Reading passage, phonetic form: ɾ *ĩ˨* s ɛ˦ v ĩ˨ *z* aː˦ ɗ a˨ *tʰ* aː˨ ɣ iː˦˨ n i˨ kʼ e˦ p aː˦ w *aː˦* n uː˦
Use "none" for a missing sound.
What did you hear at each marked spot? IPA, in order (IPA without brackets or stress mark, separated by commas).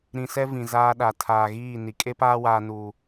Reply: ĩ˨, z, tʰ, aː˦